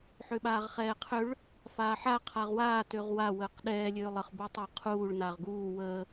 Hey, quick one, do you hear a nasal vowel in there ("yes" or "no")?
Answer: no